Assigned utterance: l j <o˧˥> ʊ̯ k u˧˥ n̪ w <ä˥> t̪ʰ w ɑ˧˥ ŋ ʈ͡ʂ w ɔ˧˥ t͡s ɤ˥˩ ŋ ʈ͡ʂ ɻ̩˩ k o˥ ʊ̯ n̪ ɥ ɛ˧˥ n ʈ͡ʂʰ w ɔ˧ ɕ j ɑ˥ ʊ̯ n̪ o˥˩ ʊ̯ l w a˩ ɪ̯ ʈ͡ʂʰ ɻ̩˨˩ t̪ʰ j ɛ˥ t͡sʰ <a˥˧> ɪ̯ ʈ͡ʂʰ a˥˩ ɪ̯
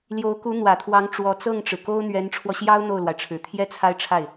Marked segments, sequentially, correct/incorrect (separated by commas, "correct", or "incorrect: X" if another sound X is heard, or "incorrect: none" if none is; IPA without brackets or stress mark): correct, incorrect: ä˨˩, correct